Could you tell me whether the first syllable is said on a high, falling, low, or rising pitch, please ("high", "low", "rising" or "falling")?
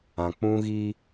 low